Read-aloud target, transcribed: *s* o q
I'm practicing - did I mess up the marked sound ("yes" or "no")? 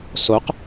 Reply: no